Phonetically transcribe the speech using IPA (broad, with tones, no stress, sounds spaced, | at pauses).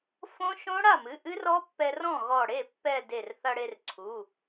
f õ˦˥ ʃ õ˦˥ ɽ a˥˩ m ɨ˩˧˩ ʔ ɨ˦˥ r ɔ˦˥ pː ɛ˧ r ɔ̃˥˩ ɣ ɔ˧˩ ɽ e˥˩ pː ɛ˧˩ d e˧˩ r θ ɐ˧ ɽ e˧ r ǀʰ u˩˧˩